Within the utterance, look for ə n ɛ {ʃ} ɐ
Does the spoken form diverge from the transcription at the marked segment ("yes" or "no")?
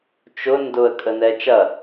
yes